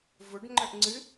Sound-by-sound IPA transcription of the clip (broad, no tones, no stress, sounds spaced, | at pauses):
v ʊ ɖ ŋ͡ǃ ə ʔ ŋ͡ǀ ɨ